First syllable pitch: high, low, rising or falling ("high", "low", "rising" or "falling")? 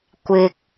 low